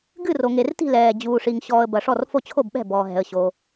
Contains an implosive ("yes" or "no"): yes